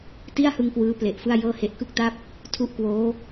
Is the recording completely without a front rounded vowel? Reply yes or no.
yes